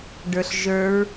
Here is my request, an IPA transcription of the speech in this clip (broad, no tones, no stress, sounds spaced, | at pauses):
ɖ ə˞ ɬ ʒ ə˞ ɹ